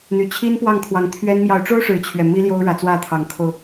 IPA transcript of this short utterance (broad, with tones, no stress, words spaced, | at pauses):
n̪y˨˩ t͡ɕʰi˦npwɑ˥˨ŋkʰwɑ˨˦ŋt̪ʰɥɛ˦n mjɑ˨˦ʊ̯ʈ͡ʂo˦ʊ̯ ʂɻ̩˨˦t͡ɕʰɥɛ˨˩ mi˦ljo˦ʊ̯ɻä˨˦t͡swä˥˨ t̪ʰɑ˨˦ŋkʰo˧ʊ̯